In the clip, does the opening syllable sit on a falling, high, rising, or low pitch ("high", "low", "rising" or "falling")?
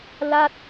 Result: falling